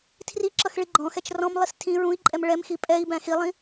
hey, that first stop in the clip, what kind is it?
aspirated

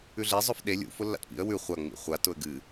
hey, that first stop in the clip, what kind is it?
implosive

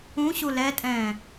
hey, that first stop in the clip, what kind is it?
ejective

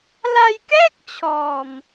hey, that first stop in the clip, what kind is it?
plain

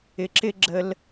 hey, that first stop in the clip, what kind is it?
click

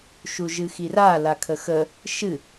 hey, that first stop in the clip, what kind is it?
aspirated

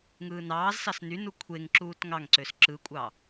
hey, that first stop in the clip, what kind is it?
aspirated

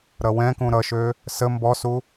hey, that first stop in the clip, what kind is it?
plain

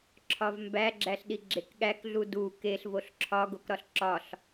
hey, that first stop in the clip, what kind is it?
click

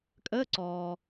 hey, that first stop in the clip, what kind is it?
ejective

